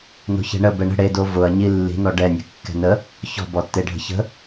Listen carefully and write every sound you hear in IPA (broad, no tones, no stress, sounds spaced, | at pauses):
n o̤ ç ɛ̤ ɳ ə b ɛ ɳ ə̤ ɽ e d o v ʊ ɐ̯ ɲ i lː i̤ n ɔ ɖ ɛ nʲ ə̤ kː ɛ̤ n ə | ç ɔ̤ b ɔ tː e ɖʱ ə̤ ç ə̤